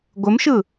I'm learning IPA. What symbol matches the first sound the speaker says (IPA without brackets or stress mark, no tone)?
ɡʷ